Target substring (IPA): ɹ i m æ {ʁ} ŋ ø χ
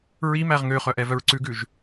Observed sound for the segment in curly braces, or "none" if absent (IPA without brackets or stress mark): ʁ